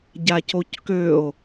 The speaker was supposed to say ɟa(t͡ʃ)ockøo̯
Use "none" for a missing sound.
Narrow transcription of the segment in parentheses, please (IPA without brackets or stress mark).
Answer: c